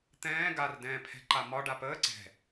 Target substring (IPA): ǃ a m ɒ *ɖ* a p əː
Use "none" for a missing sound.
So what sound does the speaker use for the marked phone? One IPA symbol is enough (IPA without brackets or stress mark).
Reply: ɖ